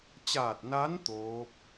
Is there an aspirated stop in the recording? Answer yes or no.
no